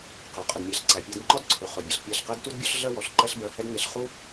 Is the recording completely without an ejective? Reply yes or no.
no